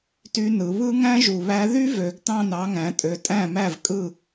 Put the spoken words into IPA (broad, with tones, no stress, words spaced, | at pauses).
ty˧˥nɯ˩˧ βɯ˥ ŋæ̃˥ʒu˨˩βæ˧˥ ðy˥vø˩˧ɡtɑ̃˥˩n ɑ˧˥ŋæ̃˩˧tʼø˨˩ tʼæ̃˥˩mæ˥˩v kʼɯ˥˩